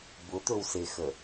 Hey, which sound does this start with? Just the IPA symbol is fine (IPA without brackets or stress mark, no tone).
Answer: b